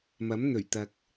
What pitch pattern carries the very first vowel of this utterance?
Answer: rising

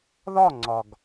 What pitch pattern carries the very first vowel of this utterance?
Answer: falling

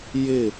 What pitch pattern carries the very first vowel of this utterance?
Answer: falling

